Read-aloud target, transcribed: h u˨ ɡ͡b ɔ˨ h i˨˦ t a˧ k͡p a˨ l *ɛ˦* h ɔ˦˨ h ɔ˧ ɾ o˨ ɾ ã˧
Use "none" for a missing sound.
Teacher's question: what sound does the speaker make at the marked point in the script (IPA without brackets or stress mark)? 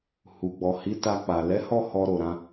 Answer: ɛ˨˦